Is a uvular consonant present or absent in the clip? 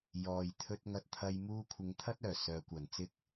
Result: absent